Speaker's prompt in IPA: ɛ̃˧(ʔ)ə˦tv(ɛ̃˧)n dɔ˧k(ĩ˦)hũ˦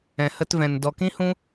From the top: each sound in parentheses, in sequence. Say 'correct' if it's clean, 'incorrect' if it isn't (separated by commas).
incorrect, correct, correct